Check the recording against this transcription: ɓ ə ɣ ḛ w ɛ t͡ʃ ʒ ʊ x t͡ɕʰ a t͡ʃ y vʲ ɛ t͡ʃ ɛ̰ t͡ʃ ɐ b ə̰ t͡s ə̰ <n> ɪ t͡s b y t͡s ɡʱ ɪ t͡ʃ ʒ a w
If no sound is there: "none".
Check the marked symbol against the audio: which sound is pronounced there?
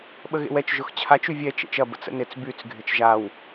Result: n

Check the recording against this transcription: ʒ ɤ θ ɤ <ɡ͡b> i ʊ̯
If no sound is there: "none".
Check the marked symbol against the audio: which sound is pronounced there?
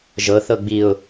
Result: ɡ͡b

